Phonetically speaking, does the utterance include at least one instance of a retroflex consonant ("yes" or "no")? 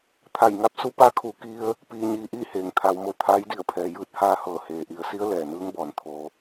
no